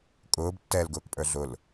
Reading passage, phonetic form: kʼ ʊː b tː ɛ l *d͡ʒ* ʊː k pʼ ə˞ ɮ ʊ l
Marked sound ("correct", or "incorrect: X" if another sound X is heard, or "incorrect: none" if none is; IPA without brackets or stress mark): incorrect: ɡ